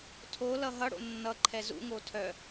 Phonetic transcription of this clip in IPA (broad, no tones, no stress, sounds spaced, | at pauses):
tʰ o l ʌ ɦ ʌ ɽ o̰ nː ʌ ǃʰ ɛ z ṵ ŋ o tʰ œ